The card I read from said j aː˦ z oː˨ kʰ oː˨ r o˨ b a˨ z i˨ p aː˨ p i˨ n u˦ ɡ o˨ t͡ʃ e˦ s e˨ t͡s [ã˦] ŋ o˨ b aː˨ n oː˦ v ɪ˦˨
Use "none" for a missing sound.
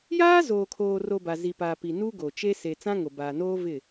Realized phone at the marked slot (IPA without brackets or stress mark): ã˦